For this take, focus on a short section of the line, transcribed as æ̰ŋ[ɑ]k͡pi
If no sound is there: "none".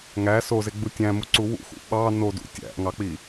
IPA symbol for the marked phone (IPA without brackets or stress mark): ɑ